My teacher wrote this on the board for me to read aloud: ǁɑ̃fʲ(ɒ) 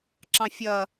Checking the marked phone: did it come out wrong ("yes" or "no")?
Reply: yes